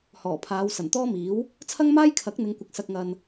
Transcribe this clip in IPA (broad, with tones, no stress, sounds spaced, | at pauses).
h ɔː˨˩ pʰ aː˨˧ w s ɐ˨˩ n t̪ ɔː˥ m iː˨˥ w | t͡sʰ ɐ˥ ŋ m aː˥ j kʰ ɐ˨˥ k̚ n̪ ɪ˨˧ ŋ kʷ ɐ˨ k̚ s ɐ˨ k̚ ŋ ɐ˨ n